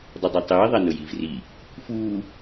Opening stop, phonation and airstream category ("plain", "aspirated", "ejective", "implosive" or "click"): plain